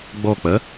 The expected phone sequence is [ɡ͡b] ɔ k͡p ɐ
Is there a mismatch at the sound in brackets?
no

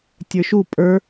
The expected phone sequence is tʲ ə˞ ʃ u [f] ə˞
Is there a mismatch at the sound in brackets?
yes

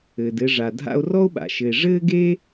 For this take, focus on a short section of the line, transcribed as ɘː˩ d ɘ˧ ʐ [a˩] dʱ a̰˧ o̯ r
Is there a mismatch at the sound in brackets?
no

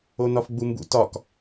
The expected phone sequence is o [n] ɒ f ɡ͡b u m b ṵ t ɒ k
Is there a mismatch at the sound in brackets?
no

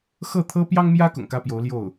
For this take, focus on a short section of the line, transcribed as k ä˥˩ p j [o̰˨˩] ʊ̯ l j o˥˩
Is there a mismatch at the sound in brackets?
yes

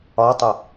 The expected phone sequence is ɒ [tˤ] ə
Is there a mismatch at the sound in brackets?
no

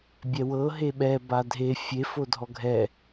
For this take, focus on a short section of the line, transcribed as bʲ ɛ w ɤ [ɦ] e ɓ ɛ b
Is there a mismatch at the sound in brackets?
no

